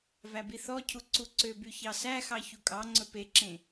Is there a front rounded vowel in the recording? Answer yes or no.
yes